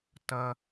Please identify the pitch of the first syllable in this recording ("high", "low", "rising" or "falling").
high